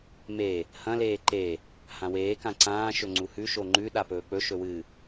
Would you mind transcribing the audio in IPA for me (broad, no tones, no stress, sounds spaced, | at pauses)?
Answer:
m e | h ɐ̃ l eː ǃ e | h ã w eː k ã ǀ ãː ʃ ɵ ŋ͡ǀ u h ʉ ʃ o ŋ͡ǃ ʉ ɗ a p ɵː k͡p ɵ ʃ ɵ w ɨ